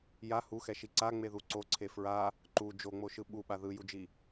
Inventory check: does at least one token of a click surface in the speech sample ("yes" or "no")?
yes